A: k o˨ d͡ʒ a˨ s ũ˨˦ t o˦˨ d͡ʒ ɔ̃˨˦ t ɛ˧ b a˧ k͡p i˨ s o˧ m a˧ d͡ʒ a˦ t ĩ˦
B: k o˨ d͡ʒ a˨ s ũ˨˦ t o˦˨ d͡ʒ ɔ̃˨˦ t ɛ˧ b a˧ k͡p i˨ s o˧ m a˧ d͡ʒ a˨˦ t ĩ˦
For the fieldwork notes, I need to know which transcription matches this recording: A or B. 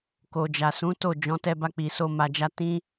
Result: A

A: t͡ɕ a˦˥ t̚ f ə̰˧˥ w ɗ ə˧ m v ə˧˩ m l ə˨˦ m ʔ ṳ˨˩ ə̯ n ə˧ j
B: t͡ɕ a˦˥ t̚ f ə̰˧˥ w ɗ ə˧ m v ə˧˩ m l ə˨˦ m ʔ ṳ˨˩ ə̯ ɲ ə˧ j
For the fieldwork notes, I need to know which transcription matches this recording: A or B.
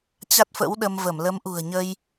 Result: B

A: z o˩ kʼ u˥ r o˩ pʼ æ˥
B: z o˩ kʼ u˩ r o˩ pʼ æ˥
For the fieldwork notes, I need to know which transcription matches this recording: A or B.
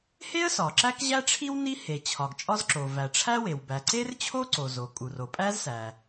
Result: B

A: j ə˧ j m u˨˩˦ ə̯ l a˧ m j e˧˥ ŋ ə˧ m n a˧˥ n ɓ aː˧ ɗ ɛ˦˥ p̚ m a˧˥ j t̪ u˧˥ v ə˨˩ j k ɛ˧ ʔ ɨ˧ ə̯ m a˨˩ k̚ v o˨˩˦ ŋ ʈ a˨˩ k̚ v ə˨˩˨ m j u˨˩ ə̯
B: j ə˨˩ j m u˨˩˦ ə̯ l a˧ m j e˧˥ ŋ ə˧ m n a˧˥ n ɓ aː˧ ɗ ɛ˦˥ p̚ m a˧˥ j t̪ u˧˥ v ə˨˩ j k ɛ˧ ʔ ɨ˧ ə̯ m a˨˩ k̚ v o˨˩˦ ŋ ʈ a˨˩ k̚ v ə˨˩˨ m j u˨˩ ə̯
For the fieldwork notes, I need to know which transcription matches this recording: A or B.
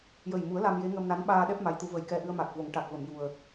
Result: B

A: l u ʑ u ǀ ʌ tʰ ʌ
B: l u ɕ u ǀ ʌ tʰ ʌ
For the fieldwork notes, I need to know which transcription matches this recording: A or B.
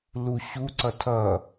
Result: B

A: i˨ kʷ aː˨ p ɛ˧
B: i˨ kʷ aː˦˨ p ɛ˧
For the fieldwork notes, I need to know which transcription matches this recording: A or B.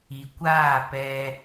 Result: B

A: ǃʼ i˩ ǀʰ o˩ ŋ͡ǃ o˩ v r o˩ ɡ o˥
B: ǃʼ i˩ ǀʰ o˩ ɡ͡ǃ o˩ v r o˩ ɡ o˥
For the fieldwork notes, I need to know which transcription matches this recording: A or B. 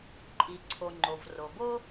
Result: A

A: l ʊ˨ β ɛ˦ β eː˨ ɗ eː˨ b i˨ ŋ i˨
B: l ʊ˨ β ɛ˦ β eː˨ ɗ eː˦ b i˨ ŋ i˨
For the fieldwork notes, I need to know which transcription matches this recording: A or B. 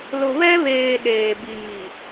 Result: A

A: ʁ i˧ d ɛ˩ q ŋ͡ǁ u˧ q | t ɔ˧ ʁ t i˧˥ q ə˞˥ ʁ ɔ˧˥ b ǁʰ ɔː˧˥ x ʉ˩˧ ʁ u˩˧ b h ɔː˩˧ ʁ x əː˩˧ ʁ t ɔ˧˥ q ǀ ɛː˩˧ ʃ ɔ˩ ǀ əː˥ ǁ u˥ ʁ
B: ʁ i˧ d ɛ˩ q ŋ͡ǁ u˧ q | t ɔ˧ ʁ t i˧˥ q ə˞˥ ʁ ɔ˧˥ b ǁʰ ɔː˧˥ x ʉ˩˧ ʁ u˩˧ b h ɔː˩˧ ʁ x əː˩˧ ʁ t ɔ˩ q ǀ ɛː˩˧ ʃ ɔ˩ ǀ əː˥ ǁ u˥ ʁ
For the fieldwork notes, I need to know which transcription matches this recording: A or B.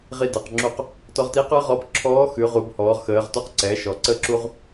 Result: A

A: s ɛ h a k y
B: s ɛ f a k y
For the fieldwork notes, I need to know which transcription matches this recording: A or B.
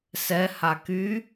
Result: A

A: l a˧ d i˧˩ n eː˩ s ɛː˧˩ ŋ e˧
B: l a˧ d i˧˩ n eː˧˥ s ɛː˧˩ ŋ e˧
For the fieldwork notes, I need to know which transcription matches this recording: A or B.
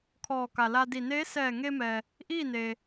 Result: B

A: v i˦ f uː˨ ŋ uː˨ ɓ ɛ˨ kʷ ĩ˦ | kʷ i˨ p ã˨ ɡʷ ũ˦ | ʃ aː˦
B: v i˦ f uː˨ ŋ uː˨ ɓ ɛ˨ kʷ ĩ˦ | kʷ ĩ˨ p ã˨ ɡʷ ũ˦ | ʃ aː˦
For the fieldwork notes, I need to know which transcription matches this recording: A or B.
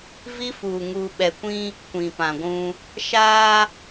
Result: B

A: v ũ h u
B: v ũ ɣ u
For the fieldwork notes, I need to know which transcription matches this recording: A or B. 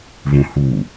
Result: A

